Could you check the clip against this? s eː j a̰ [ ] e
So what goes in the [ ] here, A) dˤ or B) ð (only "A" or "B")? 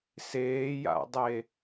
A